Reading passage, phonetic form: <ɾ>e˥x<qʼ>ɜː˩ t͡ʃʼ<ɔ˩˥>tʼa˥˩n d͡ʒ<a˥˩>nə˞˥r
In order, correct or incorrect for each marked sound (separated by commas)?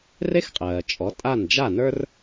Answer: incorrect, correct, correct, correct